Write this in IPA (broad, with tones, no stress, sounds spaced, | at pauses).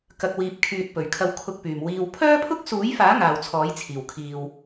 k ɐ˨ k̚ w iː˨ p̚ kʰ yː˨ t̚ p ɵ˨˩ ɥ kʰ ɐ˧ w kʰ ʊ˧ k̚ p yː˨˩ m w iː˨ w pʰ œː˥ pʰ ʊ˥ k̚ s uː˨˥ j f aː˨˥ ŋ aː˨˩ w t͡sʰ ɔː˨˥ j t͡sʰ iː˨˩ w kʰ iː˨ w